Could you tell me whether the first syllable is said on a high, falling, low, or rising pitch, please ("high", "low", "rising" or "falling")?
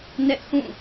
high